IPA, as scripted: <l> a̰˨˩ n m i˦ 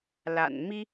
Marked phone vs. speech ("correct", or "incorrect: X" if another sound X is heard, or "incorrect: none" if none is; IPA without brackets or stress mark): correct